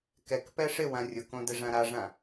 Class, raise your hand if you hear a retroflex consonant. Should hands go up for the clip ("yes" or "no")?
yes